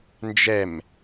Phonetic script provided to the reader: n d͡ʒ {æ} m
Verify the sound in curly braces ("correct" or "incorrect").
incorrect